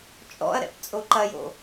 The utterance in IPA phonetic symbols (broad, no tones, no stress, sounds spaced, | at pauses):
t͡ʃʼ ɔ̰ ɐ̯ ɾ ɛ̰ p t͡sʼ o ǃ ɐ j o̰